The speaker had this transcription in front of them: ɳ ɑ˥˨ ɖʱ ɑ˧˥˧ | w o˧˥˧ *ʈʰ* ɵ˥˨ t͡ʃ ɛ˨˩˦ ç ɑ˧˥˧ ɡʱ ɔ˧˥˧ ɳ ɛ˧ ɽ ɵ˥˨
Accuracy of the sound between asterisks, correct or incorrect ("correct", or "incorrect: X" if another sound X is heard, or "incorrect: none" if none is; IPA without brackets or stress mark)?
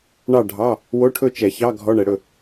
correct